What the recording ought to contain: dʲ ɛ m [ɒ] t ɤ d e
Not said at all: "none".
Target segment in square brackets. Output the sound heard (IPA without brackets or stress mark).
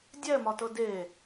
ɒ